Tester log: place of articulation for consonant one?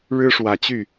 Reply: retroflex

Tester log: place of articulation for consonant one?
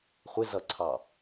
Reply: uvular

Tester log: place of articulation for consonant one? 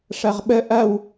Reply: retroflex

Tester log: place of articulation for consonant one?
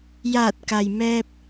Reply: palatal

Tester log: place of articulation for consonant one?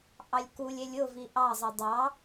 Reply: glottal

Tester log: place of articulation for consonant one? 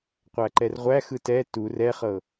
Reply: uvular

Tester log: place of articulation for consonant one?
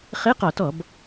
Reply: uvular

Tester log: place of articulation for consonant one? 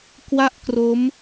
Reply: velar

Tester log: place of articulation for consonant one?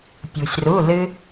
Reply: labial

